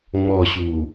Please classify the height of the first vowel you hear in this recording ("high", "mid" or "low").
mid